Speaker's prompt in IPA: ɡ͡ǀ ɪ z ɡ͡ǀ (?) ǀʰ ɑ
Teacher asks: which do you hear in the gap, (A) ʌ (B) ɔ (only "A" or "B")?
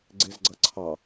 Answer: A